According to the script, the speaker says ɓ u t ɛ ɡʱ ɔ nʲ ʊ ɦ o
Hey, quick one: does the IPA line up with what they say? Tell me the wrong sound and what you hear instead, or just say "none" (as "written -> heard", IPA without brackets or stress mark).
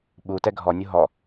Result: o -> ɔ